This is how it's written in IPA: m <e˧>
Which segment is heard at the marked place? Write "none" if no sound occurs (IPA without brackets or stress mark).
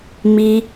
i˧